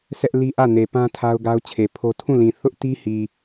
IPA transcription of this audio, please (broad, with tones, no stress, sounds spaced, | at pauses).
sʰ ɛ˦ ʔ l i˦ ʔ ä˦˨ n e˨ p ã˦ tʰ a˦ ʊ̯ ɡ a˦ ʊ̯ t͡ɕʰ e˨ pʰ o˦ tʰ ũ˦˨ l ĩ˨ θ ʊ˦ ʔ t i˦ h i˨